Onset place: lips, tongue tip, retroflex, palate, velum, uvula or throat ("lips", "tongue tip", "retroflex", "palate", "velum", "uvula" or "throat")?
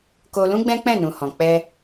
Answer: velum